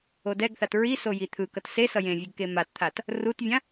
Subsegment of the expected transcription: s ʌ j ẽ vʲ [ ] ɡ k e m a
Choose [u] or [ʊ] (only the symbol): u